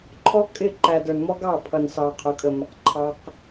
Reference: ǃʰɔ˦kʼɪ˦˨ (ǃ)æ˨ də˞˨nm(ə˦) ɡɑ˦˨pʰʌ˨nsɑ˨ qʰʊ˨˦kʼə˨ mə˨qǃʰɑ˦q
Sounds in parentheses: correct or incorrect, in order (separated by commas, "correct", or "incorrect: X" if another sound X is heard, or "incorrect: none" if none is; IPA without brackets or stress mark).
correct, incorrect: ɔ˦